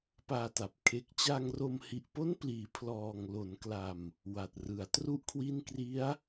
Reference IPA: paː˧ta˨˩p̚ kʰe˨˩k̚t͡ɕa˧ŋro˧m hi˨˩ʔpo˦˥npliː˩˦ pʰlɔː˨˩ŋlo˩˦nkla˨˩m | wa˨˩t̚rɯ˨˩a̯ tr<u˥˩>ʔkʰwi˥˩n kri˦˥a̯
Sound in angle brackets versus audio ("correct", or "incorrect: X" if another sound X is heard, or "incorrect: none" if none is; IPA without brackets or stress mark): correct